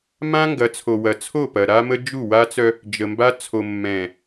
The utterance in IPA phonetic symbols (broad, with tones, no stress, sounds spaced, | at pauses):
m ã˦ ŋ ɡ ɐ˨˦ t͡sʰ o˨ w ɐ˨ t͡sʰ o˦˨ p ɐ˨ ɾ a˦ m ə˦ d͡ʒ u˦˨ w a˦ t͡s œ˦ | d͡ʒ ə˨ m b a˦ t͡sʰ o˨ mː ɛ̃˨